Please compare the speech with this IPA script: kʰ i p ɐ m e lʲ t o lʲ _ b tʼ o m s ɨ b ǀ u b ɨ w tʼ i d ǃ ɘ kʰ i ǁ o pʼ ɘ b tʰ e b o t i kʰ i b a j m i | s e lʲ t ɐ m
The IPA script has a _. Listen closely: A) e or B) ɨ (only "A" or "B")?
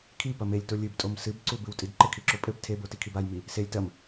B